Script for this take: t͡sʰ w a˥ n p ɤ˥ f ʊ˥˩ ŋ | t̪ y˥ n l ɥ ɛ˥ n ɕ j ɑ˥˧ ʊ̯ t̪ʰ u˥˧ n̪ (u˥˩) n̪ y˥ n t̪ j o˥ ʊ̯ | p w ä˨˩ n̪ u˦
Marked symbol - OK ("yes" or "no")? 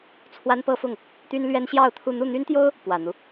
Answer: yes